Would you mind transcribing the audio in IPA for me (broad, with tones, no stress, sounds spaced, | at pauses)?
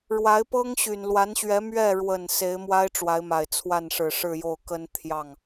ɻ w a˧˥ ɪ̯ p ɤ˥ ŋ ɕ y˨˩ n l w a˧˥ n ɕ ɥ ɛ˧˥ m ɥ ɛ˥˩ ɻ w ə˨˩ n s e˧˥ ɪ̯ m w a˥ ɪ̯ ʈ͡ʂ w a˧˥ ɪ̯ m a˨˩ ɪ̯ t͡sʰ w a˥˩ n ʂ ɻ̩˨˩ ʂ ɻ̩˥˧ j o˥˩ ʊ̯ k ə˥ n t̪ʰ j ɑ˥˩ ŋ